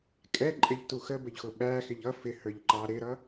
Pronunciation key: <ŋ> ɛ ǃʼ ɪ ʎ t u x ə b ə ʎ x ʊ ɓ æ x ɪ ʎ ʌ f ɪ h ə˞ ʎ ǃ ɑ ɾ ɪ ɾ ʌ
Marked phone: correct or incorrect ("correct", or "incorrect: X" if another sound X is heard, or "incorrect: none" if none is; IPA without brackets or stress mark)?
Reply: incorrect: kʼ